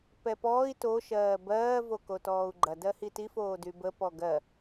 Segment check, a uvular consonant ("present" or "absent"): absent